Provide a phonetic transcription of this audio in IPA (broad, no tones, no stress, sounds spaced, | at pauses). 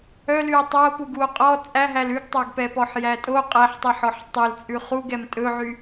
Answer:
œ l y e̯ tˤ ɑ o̯ p u ɡ u o̯ qʼ ɔ t͡sʼ æ ɦ æ l ʉ ɡ tˤ ɑ ɡ p ɛ p ɔ ħ j æ tʼ o qʼ æ ħ tˤ i ħ ɔ ħ tˤ ɵ l t͡sʼ ʉ χ u ɡ ɛ m tʼ ɵ ʕ y